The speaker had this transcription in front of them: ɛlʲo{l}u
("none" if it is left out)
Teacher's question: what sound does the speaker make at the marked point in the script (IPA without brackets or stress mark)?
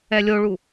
ɭ